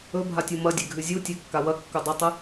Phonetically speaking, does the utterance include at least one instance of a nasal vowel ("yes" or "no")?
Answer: no